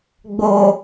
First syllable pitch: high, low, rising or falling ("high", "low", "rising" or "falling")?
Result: low